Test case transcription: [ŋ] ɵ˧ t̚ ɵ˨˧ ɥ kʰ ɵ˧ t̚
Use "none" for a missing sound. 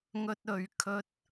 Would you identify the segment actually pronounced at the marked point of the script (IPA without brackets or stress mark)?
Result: ŋ